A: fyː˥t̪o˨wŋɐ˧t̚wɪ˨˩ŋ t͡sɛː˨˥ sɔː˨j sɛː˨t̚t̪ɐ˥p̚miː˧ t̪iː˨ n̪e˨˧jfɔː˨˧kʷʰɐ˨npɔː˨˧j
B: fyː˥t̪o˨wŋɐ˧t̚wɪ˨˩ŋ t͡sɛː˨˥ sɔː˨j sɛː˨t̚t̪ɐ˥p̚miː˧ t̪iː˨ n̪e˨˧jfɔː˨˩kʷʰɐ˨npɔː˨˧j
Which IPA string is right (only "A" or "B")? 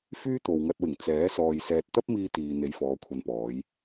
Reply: A